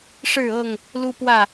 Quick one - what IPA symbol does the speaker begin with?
ʂ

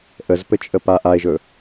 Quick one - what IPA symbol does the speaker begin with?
ʔ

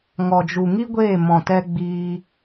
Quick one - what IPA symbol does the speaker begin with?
ŋ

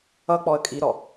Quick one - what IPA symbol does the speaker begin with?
ʌ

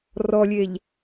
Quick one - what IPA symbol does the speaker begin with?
r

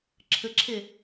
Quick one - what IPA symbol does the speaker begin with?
ǁʰ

